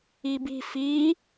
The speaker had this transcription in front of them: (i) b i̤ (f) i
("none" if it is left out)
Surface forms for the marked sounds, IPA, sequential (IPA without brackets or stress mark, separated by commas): i, f